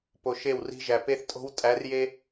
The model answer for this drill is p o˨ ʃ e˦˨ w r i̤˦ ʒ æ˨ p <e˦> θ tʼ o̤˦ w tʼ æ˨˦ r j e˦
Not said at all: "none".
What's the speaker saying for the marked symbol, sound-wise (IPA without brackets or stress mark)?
e˦